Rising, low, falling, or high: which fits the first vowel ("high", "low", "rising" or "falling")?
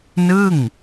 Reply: falling